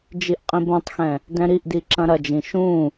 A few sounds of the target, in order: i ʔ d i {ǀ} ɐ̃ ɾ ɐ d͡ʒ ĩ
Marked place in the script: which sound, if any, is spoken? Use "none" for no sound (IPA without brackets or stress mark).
ǁ